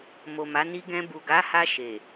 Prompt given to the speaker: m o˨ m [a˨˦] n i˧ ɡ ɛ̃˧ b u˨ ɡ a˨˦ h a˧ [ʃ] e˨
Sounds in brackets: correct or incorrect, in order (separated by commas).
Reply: correct, correct